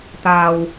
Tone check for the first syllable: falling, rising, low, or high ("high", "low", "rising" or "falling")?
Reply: low